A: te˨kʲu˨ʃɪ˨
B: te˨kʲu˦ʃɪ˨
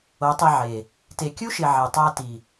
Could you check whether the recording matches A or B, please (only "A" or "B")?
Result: B